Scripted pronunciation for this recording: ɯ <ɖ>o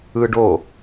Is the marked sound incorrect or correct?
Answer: correct